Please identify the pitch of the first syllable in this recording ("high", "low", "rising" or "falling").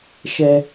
high